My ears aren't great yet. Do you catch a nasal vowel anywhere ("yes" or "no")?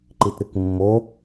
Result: no